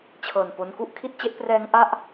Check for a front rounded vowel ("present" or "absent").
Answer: absent